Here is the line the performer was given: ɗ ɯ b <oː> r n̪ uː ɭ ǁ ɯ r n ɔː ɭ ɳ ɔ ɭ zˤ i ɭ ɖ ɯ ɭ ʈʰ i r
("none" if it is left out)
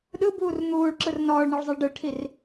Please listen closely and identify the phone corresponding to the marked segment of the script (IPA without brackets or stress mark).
uː